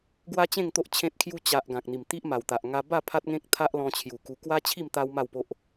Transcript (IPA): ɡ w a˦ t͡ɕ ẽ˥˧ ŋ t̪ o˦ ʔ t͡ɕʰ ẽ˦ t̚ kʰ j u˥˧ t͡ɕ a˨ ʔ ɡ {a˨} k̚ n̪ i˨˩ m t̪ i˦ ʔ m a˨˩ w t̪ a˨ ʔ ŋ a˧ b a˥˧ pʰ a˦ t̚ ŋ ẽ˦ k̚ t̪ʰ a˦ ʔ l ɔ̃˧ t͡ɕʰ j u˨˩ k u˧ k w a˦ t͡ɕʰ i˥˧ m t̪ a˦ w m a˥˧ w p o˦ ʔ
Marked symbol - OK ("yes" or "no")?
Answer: no